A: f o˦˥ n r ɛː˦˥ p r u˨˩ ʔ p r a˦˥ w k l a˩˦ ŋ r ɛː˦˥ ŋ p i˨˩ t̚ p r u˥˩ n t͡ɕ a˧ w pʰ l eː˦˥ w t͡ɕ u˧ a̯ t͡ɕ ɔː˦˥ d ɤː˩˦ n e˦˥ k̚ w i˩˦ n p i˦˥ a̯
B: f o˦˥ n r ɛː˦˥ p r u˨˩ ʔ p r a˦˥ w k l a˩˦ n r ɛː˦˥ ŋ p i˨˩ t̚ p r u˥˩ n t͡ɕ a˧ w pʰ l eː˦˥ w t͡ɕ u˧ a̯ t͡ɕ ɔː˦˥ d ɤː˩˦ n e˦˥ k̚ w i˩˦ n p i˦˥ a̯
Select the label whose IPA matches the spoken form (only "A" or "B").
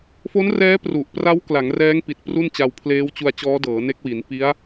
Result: A